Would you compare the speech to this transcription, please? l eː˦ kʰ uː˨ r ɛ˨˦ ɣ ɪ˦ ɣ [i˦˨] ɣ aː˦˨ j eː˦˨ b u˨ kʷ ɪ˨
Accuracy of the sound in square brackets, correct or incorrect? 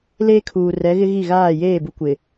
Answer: correct